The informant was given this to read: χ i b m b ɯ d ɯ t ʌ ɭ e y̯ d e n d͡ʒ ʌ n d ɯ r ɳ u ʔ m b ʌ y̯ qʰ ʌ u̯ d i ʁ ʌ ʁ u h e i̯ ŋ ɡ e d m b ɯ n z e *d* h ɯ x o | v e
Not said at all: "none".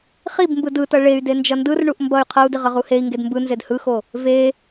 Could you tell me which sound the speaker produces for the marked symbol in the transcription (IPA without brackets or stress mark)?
d